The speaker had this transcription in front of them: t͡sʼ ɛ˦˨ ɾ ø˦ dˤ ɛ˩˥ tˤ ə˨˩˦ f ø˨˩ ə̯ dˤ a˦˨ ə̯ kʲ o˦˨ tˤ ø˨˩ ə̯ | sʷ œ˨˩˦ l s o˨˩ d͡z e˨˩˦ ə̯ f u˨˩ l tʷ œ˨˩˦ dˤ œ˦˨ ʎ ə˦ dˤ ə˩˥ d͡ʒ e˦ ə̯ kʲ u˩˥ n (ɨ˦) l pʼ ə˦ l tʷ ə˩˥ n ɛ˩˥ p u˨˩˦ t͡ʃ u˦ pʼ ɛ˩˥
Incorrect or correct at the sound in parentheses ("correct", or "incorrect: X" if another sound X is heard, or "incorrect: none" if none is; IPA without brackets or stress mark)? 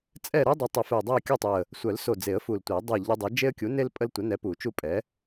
incorrect: e˦